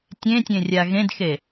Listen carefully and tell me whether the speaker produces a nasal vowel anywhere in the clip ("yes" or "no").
yes